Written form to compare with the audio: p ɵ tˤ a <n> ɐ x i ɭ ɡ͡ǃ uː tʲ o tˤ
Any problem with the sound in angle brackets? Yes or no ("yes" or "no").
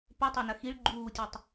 no